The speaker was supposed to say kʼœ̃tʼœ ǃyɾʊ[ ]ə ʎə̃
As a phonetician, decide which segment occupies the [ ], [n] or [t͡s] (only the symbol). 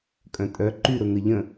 n